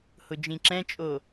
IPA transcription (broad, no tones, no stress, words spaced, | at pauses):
hʊd͡ʒĩǁɛ̃t͡ʃʼo